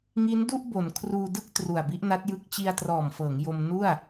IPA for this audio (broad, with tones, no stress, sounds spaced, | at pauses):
ŋ i˦˥ n d u˥˩ ʔ b o˩˦ n kʰ r uː˧ d ɯ˥˩ k̚ t r u˨˩ a̯ b i˦˥ ʔ n a˦˥ t̚ j ɯ˦˥ k̚ t͡ɕ i˧ a̯ t r ɔː˨˩ m f ɤː˩˦ ŋ j o˧ m n u˥˩ a̯